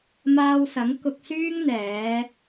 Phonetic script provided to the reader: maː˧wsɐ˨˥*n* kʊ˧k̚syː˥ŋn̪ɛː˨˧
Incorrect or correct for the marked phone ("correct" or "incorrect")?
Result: incorrect